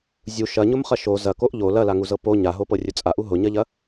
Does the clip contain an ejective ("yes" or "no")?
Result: yes